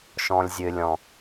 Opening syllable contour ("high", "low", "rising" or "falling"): low